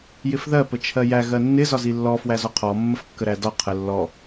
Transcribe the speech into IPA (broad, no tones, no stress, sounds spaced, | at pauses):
j ɪ f ð ɜ p ə t͡ʃʰ ɜ j æ ɣ ɜ nː ɪ z ɒ z i lː ɔ f w æ z ɔ qʰ ɔ mː ə f kː ə ɾ æ d ɒ qʰ ə lː ɔ